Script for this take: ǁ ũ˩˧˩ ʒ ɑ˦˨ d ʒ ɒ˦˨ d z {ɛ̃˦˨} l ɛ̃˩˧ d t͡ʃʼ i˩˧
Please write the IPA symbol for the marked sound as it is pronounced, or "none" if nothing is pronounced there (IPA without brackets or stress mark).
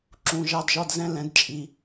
ɛ̃˦˨